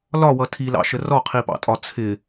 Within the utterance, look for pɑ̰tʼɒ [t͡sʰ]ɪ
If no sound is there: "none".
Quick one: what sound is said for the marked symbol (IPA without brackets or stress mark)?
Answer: t͡sʰ